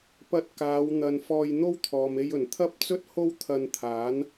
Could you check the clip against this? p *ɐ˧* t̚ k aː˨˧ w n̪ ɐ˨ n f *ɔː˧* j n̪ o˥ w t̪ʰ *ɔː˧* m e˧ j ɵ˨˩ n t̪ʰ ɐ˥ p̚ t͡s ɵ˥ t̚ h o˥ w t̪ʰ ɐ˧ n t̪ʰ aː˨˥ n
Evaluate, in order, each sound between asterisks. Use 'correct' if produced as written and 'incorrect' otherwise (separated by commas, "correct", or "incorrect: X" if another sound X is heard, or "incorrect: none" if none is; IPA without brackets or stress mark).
correct, correct, incorrect: ɔː˨